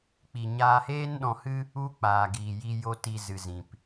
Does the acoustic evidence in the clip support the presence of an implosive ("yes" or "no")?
yes